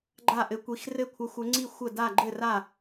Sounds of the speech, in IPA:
ɡ͡ǃ a˥˨ ʔ ɘ˧˥ kʷ i˧˥ x r ɘ˥˨ kʷʰ ə˧˥ xʷ ɘ˧˥ ŋ͡ǀ i˥˨ xʷ ə˥˨ d a˥˨ ɡ͡ǃ ɘ˥˨ r a˥˨

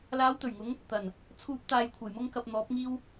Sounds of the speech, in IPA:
l aː˨˧ w t̪ ɵ˨˩ ɥ ŋ ʊ˨˧ ŋ | t̪ ɐ˨˩ n | t͡sʰ uː˨ p̚ t̪ aː˨ j kʷʰ ɐ˨˩ j m ʊ˧ ŋ k ɐ˨ p̚ n̪ ɔː˨˥ p̚ ŋ iː˥ w

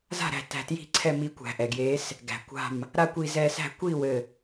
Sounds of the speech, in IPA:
z a̤˥˩ ɾ æ̤˧˩ t æ̤˧˩ t j i̤˥˩ ǀʰ ɛ˥˩ m i˨˥ kʷ æ̤˩ ʔ ɛ˩ ɡ j e˨˥ s | ɡ æ̤˩ kʷ a̤˧˩ m | ɾ a˥˩ kʷ i˧˩ z ɛ˧˩ s æ̤˥˩ kʷ i˥˩ w ɘ˧˩

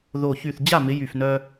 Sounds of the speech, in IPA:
ð o˧˩ ç y˧˩ θ d͡ʑ a˥˩ m ɪ˨˦ j y˧˩ f n œ˦

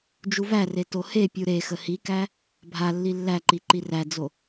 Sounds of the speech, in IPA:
d͡ʒ u v æ r e t o h e pʲ u ɾ e x ə h i k æ | bʱ a lː i lː æ ǃ i ǃ i r æ d͡z o

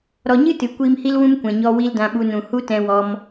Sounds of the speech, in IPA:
ɾ ɔ˨ ɲ ɨ˦ t ɨ˨ kʷ iː˧ m h i˦ l w ũ˦ m kʷ ɛ̃˨ ɲ ɔ˧ w i˦ l d ã˧ ɓ u˧ n ũ˨ h u˦ t ɛ̃˧ w ɔ˧ m

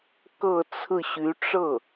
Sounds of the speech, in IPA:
k ɤ˥˧ t͡sʰ ɹ̩˥˩ ɕ y˧˥ ʈ͡ʂ ɤ˥˩

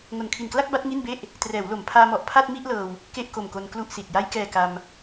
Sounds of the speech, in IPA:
ŋ o˨˩ n kʰ i˨˩ n k l a˥˩ k̚ b a˦˥ t̚ ŋ i˥˩ n b e˥˩ ʔ | t r ɛː˩˦ w l o˩˦ m pʰ aː˧ m ɔ˨˩ ʔ pʰ a˥˩ t̚ m i˥˩ ʔ l ɤː˧ w | k e˥˩ ʔ k o˨˩ m k o˧ n k l u˥˩ ʔ s i˨˩ t̚ j a˧ j k ɛː˨˩ k a˧ m

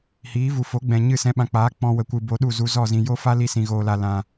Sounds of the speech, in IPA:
h iː˨˦ v u˨ f o˨˦ ɡ͡b ɛ̃˨ ɲ ɨ˦˨ s ɛ̃˧ ɓ ã˨ k͡p aː˨˦ k͡p ɔ̃˧ w ə˨ kʷ ɨ˨ b o˧ ɗ u˦˨ z u˧ z ɔ˦˨ z ĩ˨ j o˦ f a˦ l i˧ s ĩ˨ ɣ oː˨ l a˨ l ã˨

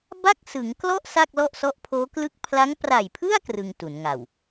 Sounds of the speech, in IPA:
b a˥˩ k̚ s ɯ˩˦ ŋ k l ɔ˥˩ ʔ s a˥˩ k̚ l ɔ˥˩ ʔ s ɔ˦˥ ʔ pʰ oː˦˥ k l ɯ˥˩ k̚ pʰ l a˦˥ ŋ p r a˨˩ j pʰ ɯ˥˩ a̯ k r ɯ˧ ŋ t u˩˦ n ŋ a˨˩ w

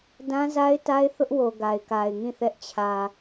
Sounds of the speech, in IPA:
d ã˦ z a˦ ɪ̯ t a˦ ɪ̯ θ ʊ˦ ʔ w o˨ ɡ a˨ ɪ̯ k a˨ ɪ̯ ŋ ĩ˦˨ θ ɛ˦ ʔ t͡ɕʰ ä˨

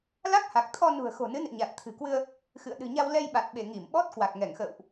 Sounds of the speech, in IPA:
l a˦˥ k̚ h a˨˩ k̚ t̪ʰ ɔ˧ n ṳ˨˩ ə̯ x o̤˨˩ n ɨ˨˦ n ɨ̰˧˨ ɲ a˨˩ t̚ t̪ʰ ɨ̤˨˩ k w ɨ˧ ə̯ | x ɨ̰˧˨ ə̯ ɗ ɨ̤˨˩ ɲ a˧ w l ɛ˧ j ɓ a˨˩ t̚ ɓ e˧˩ ŋ i˧˩ m ɓ ɔ˦˥ t̚ k w a˨˩ k̚ ŋ ɛ˧˩ ŋ x ə̰ː˧˨ w ʔ

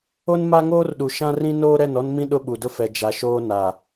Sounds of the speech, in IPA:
o˦ n m a˦ ŋ oː˦ r ɗ u˨ ʃ ã˦ r ĩ˦ n oː˦ ɾ ɛ˦˨ n ɔ˦ n m ĩ˦ ɗ ʊ˦ ɓ u˨ d ʊ˦ f ɛ˨ d͡ʒ a˨ ʃ oː˦ n a˨

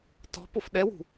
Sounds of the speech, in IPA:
t ɔ̤ p o f ɗ ɛ w ṳ

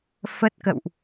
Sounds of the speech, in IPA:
f ə˦˥ t̚ k ə̰˧˨ w ʔ

